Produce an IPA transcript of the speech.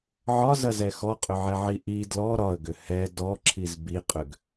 ʕ ɒ z ɐ z ɛ x ɔ qʼ ʏ ʕ ɛ ʕ i ʔ i d l ɔ ɾ ɒ ə̯ ɡ ʏ h ɛ d ɔ ǁʰ i z b i qʼ ʏ ɡ

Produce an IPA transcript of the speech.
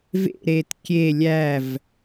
v ḛ ɾ e t kʲ e lʲ æ v

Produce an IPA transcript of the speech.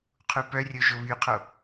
qʰ u p œ rʲ o ʒ o β y qʰ o

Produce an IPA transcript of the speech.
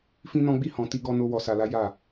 f ĩ˦ n ɔ̃˦ ɡ͡b i˦ h ɔ̃˧ t i˦ ɡ ɔ˦ n o˦ w ɔ˧ s a˧ l a˦ j a˦˨

